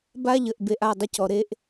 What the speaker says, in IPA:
ba˦ʎə˨ʔbe˨ʔ a˦˨dˤə˦cɔ˨ ɾe˦ʔ

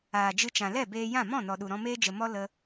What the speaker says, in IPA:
aː˨d͡ʒɨ˧t͡ʃã˨ lɛ˦˨beː˧jã˦˨ mɔ̃˦˨nɔ˨ɗu˨ ɾɔ̃˧meː˦d͡ʒə˨mɔ˦ lə˦

